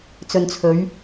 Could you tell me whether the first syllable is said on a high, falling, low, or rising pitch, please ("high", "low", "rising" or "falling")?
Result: low